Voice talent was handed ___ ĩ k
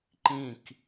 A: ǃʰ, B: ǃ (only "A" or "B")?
B